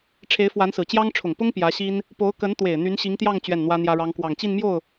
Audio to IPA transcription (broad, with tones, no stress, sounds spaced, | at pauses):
ʈ͡ʂʰ e˧˥ ɪ̯ f w a˧˥ n s ɹ̩˨˩ t͡ɕ j ɑ˥ ŋ ʈ͡ʂʰ ʊ˨˩ ŋ p ʊ˥ ŋ p j ä˧˥ ɕ i˥ n | p o˧˥ ʊ̯ k ə˧˥ n t̪ w e˨˩ ɪ̯ n̪ y˧˥ n ɕ i˧˥ ŋ t̪ j ɑ˥˧ ŋ t͡ɕ ɥ ɛ˥˩ n n̪ w ä˥ n̪ j ä˥ ɻ ɑ˥ ŋ k w ɑ˨˩ ŋ t͡ɕ i˥˧ n m j o˥˩ ʊ̯